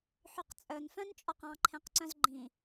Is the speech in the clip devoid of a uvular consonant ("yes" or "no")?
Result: no